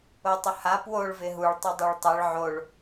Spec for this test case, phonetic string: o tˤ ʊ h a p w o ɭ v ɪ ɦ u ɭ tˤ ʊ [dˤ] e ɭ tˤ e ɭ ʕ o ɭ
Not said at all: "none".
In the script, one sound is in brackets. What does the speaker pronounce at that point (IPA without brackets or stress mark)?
dˤ